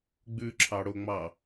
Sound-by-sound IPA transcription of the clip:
ɡ͡bʉǁʰɑɽoŋ͡mɑ

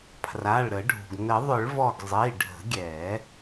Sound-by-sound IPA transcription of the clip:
pʰra˩˧˩ɭɾə˨˩˦ɖʱṳ˩ɡ nə˨˩˦ðˤʏ˨˩˦ɭvɔ˧˩ɡ zˤi˩˧˩ɖʱə̤˨˩˦ɡʲɛ˨˩˦

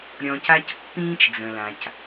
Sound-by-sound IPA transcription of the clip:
ɾʲɔ̃˧ca˦c pːĩː˦t͡ʃd͡zə̃˨lã˨c

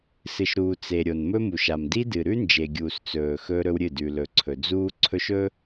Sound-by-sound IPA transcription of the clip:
sɨ˨ʃɾuː˨ t͡se˨ ɾʲo˨nmɵ˦mu˨ʃ a˨mdi˦dɨ˨ ɾʉ˦nd͡ʒe˨ɡʲuː˨s t͡sɵː˨ xɵː˦ɾɵ˦wɾʲɨ˦˨ dʉ˨lɵ˨ǀʰɵ˨ d͡zuː˦ ǀʰɵ˦ʃɵ˦

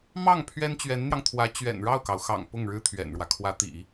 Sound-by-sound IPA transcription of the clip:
mɑ˥˩ŋ pʰɥɛ˥nt͡ɕɥɛ˧˥nn̪jɑ˧ŋt̪ʰwä˧˥ t͡ɕɥɛ̰˨˩nɻɑ˥˩ʊ̯kɑ˩ʊ̯xɑ̰˨˩ŋ pʊ˥˩ŋɻɻ̩˥ t̪ʰɥɛ̰˨˩nɻwä˦ kʰwä˧˥t̪ḭ˨˩˦

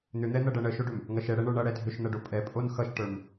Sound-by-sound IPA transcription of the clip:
n̪ʏn̪ɛn̪ɐɖʌ ɳəʃoɖʏm | ŋɐʃɛɽɛ ɳə˞ɳʌ ɽɛdʱʏʃn̪ɐɖo pʼɛpʼon xʌʃʈə˞m

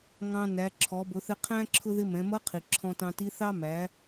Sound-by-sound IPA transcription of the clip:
ŋɑ̃˧næ˩˧ ǁʰɔ˩˧bʊ˩˧θɪ˧ qʰæ̃˥ ǁʰʊ˧ðɪ˧ mɛ̃˩˧mʌ˧˥ qʰi˩ ǁʰɔ̃˧tɑ̃˧ti˧˥θɑ˥ mæ˩˧

